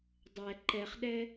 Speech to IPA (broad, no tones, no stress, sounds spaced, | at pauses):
dˤ ɛ ǃ ɛ χ ɗ ɛ